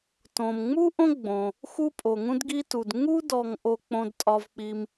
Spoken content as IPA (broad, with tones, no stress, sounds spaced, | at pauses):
t õ˩ m ŋ͡m u˥ ʔ õ˥ ɡ͡b õ˩ | x u˦ pʼ o˩ ŋ ũ˦ d ɡ i˦ t u˩ d ŋ u˥ d ɔ˨ ŋ ʔ o˦ k͡p õ˦ d tʼ ɒ˦ v k͡p i˦ m